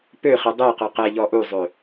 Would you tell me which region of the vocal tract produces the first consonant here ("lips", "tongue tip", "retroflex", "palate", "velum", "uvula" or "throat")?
lips